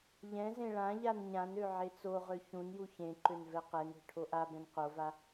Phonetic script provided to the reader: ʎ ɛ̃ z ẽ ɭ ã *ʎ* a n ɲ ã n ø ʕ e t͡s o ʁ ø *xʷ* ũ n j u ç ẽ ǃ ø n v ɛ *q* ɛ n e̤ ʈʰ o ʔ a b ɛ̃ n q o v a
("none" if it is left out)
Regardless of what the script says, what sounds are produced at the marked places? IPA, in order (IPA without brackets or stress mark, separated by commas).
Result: ʎ, ç, q